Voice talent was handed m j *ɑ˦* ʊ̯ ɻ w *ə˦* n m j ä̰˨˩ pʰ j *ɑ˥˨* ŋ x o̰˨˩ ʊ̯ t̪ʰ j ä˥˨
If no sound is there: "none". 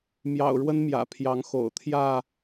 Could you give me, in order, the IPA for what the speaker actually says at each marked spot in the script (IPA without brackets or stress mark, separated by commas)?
ɑ̰˨˩, ə˦, ɑ˨˦